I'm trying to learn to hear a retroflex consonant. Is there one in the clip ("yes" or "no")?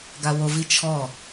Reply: no